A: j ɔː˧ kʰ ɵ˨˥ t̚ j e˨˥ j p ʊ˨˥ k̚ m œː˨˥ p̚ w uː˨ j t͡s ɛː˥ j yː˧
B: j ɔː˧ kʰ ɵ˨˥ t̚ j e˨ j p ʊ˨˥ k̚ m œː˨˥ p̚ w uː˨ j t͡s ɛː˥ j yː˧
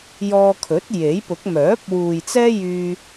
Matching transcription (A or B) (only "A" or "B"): A